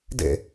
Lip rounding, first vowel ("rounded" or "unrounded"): unrounded